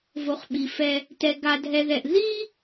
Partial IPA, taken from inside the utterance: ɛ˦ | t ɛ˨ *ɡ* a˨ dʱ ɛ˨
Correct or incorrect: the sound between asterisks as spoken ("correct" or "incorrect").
correct